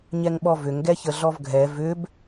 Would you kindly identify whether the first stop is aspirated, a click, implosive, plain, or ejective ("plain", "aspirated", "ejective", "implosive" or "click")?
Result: implosive